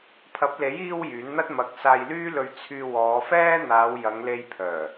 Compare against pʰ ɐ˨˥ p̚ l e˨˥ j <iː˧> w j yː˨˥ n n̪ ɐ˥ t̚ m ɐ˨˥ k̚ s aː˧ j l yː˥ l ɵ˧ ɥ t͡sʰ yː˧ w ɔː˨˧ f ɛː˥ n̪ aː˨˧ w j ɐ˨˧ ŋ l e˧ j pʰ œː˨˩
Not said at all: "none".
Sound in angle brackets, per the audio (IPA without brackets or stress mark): iː˧